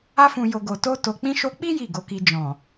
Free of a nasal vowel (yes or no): no